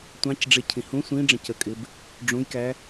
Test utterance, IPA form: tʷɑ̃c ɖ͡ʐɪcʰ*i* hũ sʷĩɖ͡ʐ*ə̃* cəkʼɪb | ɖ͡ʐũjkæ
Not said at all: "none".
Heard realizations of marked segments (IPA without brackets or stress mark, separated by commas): ĩ, ə̃